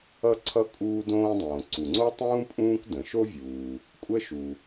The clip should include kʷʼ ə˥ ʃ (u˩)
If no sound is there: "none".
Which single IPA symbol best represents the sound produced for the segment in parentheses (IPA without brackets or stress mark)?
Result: u˩